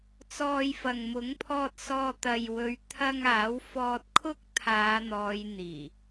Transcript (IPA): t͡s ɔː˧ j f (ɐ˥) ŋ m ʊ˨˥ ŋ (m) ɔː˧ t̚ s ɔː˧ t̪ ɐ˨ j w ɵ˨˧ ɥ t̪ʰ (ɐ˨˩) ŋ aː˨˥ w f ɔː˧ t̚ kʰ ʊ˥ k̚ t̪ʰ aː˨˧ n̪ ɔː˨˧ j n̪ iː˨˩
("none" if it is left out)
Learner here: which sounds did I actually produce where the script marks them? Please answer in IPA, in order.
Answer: ɐ˨, pʰ, ɐ˧

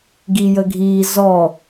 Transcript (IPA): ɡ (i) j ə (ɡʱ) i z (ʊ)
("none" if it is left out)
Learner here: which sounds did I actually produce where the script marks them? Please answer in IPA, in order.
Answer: i, ɡʱ, ɔ

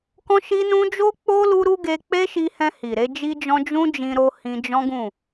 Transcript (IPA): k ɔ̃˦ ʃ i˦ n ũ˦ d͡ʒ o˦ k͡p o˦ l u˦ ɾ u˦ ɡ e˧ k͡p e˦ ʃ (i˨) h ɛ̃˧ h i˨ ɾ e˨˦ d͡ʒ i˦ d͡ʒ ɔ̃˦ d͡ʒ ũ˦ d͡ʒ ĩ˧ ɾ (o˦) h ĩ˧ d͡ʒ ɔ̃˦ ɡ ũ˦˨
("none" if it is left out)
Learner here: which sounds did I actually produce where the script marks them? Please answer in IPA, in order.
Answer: i˧, o˧

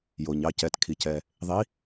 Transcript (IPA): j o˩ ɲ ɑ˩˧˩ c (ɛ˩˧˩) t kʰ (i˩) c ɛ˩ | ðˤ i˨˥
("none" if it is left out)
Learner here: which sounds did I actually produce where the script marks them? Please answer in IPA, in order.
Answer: ɛ˩˧˩, i˩

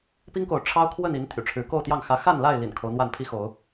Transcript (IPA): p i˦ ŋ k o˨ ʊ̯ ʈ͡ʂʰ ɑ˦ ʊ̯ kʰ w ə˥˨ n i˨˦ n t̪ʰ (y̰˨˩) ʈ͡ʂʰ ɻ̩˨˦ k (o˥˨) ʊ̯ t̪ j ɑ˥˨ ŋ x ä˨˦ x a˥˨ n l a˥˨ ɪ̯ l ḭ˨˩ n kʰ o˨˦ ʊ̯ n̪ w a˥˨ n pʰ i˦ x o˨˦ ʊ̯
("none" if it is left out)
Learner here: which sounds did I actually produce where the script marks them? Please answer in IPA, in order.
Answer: y̰˨˩, o˥˨

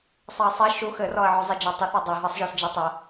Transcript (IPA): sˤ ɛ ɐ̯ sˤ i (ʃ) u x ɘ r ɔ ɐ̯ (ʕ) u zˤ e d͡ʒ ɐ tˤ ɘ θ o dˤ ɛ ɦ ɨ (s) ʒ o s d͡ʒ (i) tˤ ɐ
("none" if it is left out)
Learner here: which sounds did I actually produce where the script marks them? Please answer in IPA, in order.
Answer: ʃ, ʕ, sˤ, i

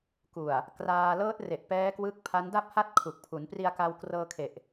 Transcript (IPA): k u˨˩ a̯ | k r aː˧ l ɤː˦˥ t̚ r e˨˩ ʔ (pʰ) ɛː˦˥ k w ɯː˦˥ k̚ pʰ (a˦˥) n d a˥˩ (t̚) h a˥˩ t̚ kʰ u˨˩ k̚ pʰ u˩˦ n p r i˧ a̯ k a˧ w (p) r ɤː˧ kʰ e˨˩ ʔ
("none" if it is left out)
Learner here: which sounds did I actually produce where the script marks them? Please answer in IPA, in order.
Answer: p, a˦˥, p̚, k

